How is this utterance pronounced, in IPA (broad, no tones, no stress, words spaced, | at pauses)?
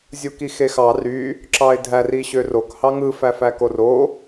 zʲukixexɑ ry | ǁɑɪ̯dʱær iɕørok hɑŋɯ fæfækoro